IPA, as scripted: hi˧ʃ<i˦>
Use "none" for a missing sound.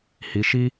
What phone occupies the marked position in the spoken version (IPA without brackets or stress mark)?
i˦